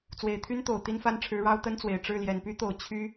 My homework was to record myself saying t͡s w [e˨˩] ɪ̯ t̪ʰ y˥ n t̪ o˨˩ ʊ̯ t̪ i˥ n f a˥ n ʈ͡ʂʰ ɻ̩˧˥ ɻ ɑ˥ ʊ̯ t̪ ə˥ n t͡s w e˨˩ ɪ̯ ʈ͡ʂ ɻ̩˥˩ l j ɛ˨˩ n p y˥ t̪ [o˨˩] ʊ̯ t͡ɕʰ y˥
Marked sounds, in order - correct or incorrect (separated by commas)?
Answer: correct, correct